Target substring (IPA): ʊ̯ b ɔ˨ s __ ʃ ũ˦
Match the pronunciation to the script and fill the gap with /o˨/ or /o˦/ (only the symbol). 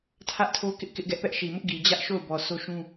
o˦